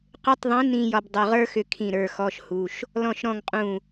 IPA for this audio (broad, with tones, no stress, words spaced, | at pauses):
qʏ˧˥˧tˤðˤĩ˨˥ nĩ˧ jɒ˧bdˤʏ˩˧˩ʁə˞˥xʏ˧ kʰĩ˧˩ ɾə˞˩˧˩xɔ˧˥˧ʃhu˩˧˩ʃ | lɔ̃˧˩ʃɾɔ̃˧˩ŋ qʼũ˧˩